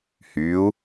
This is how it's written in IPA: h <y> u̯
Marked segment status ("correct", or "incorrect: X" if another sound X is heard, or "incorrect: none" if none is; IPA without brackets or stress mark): correct